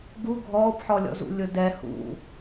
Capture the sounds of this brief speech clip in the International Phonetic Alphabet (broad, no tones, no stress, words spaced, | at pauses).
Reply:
ɡu ɡʱɔːpħɔlʲɔ̰zṵ lʲʊdɛ hṵ